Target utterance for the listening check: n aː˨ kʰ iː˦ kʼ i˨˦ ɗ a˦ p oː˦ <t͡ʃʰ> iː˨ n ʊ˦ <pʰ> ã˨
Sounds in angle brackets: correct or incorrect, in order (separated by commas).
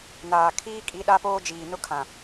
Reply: incorrect, incorrect